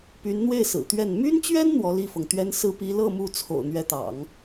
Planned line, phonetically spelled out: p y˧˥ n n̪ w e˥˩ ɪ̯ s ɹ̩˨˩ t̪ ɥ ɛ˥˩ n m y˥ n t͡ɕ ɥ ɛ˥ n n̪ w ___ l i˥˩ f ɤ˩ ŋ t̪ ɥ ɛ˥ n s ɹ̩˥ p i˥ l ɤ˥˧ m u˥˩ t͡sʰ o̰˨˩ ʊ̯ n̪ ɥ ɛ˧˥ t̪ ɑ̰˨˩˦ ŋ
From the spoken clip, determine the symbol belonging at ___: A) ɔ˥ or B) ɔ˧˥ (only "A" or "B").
B